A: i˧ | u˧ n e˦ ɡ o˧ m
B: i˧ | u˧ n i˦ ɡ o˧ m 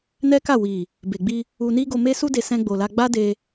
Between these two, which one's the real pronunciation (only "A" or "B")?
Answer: B